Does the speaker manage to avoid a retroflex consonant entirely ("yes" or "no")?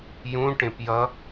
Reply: no